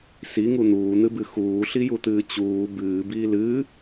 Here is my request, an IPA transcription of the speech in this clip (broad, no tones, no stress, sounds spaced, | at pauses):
s i ŋ u n̪ uː n̪ ɨ b ɨ x uː ɬ i j u t̪ ɨː t͡ɕ uː b ɨː b iː l ɨ